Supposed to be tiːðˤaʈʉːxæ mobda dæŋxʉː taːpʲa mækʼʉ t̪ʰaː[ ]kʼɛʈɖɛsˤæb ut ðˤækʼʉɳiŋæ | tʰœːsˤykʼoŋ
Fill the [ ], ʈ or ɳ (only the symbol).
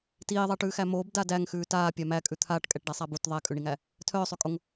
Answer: ʈ